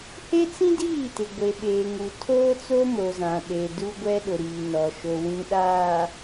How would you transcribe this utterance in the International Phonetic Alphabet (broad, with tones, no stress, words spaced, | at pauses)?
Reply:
he˦t͡sĩ˦diː˦˨ tɪ˨ɡʷe˨ ɓeː˨ŋu˨tʰoː˦t͡so˦ mo˨zã˨ ɗe˨ du˦ɡʷɛ˦ɗʊ˨ ɾiː˨nɔ˨ ʃo˨ wĩ˨ɗaː˨